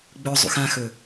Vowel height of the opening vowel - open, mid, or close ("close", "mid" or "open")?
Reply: mid